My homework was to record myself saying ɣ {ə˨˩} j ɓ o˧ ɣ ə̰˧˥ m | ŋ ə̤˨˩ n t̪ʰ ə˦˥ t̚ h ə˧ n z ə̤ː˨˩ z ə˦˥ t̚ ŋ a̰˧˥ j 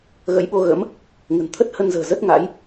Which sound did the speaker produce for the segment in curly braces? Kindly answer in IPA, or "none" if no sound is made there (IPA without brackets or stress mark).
ə̰˧˥